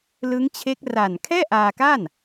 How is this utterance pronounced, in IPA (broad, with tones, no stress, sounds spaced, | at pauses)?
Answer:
l ɯ˦˥ ŋ t͡ɕʰ e˦˥ k̚ r a˨˩ n kʰ ɛː˥˩ ʔ aː˧ k a˥˩ n